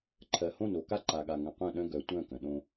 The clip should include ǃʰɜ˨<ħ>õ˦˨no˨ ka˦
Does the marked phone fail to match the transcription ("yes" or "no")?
yes